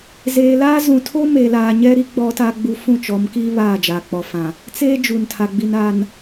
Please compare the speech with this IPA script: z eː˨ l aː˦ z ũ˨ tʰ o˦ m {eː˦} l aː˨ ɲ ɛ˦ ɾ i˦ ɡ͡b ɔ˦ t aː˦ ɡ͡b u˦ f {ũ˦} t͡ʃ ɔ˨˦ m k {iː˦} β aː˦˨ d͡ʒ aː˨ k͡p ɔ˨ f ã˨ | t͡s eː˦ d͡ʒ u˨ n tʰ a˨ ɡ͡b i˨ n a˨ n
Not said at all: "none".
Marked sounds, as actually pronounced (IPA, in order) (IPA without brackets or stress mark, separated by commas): eː˨, ũ˦˨, iː˦